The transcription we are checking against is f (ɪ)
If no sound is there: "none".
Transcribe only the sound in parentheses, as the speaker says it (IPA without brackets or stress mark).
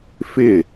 ɪ